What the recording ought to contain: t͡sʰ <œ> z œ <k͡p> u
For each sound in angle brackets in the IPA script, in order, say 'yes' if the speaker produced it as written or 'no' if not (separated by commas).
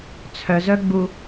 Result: yes, no